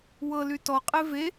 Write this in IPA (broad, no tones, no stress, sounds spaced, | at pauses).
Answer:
w ɤ l y t ɔ qʼ e v e